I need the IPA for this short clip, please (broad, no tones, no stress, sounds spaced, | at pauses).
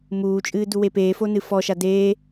m uː t͡ʃʼ ɨː d u w e p eː f o n ɨ f ɔ ʃ a d eː